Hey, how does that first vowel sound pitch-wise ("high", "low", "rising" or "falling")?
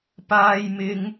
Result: high